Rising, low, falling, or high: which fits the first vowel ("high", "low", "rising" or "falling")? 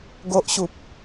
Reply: low